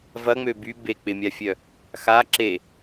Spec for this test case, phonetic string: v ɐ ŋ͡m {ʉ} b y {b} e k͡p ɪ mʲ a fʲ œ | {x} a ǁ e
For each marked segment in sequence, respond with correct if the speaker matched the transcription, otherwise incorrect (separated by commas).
incorrect, correct, correct